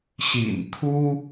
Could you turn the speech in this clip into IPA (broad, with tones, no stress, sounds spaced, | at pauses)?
ɕ ḭ˨˩ n t̪ʰ u˥